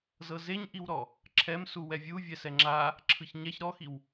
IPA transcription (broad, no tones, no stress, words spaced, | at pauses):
zɤzeɲʔiwɾɔ | ǁʰɛmsuwɛ vʲu vʲɛsɛŋ͡ǁa | ǁʰɯçɲɛç ɾɔxiw